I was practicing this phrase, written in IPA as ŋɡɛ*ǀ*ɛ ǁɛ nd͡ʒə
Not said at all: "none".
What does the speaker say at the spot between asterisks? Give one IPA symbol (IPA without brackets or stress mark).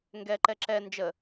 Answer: ǃ